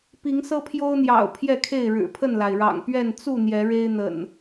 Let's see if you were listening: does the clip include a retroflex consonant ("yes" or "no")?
yes